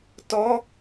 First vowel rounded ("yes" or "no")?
yes